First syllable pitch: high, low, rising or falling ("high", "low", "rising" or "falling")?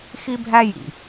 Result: high